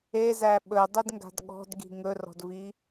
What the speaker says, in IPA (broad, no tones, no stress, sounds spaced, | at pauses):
e z æ ɓ ɵ dˤ i d ŋ ɡ a̤ d ɠ ɔ̤ d ɡ i̤ ŋ ɵ r ɔ̤ d v i